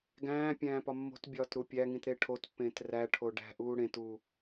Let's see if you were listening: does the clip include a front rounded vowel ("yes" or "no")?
no